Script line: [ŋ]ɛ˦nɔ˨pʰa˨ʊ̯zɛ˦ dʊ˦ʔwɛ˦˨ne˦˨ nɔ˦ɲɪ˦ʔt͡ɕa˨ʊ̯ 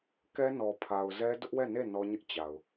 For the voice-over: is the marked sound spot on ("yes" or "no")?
no